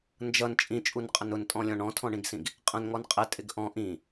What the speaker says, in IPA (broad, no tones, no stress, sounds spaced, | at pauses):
n d͡ʒ ʌ n t͡ʃʼ ĩ t͡ʃʼ u n qʼ ə n ʊ n tʼ ɔ̃ lʲ ɔ̃ ɳ ɔ̃ tʰ ɔ̃ ɳ ĩ ɡ s ĩ ɡ | qʼ ə̃ n ŋ ɔ n qʼ ɪ tʼ ɪ ɡ ʔ ɔ̃ ʔ ĩ